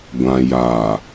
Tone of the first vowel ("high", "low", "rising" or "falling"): low